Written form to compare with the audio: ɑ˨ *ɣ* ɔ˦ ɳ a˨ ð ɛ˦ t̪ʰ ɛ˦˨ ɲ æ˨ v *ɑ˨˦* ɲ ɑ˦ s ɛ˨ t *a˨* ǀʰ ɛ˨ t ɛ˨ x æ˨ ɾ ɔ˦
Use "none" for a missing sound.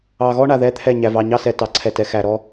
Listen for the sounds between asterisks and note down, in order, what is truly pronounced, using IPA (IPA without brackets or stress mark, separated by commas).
ɣ, ɑ˨, ɑ˨